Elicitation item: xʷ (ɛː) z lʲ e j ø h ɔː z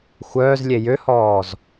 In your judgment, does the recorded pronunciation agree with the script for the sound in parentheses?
no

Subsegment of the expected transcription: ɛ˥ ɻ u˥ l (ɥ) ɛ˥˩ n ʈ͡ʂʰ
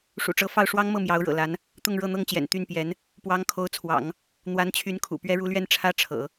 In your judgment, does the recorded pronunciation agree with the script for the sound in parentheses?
yes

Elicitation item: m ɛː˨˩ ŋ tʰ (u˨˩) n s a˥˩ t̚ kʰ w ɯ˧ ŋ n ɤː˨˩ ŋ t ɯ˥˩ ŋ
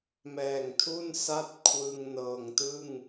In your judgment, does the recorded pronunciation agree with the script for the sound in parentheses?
no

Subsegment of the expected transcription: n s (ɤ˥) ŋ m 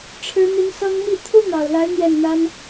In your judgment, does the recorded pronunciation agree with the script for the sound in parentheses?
yes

